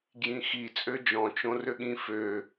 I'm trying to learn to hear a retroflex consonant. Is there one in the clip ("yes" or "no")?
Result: no